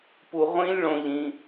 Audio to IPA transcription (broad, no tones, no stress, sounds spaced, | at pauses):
p u ʁʷ ĩ lʲ ɭ õ ʎ ĩ